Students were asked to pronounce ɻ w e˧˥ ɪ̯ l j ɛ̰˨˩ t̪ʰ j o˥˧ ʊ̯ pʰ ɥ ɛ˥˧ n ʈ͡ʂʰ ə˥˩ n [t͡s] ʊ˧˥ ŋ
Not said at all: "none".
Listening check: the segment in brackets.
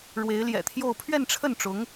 ʈ͡ʂ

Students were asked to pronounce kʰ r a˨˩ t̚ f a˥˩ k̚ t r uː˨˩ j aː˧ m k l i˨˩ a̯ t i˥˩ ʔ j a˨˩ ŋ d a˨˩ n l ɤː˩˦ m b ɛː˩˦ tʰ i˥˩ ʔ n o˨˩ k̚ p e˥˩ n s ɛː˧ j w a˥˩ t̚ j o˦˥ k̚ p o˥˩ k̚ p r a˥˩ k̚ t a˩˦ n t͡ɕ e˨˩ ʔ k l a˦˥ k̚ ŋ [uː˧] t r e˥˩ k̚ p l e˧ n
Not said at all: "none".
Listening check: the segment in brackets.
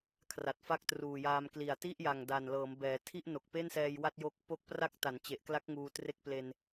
uː˧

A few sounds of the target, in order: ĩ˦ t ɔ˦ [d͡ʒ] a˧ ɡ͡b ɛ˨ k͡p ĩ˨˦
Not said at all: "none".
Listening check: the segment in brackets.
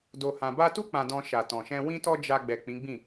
d͡ʒ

